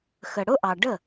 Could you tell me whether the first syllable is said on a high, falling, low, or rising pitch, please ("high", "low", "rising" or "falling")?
low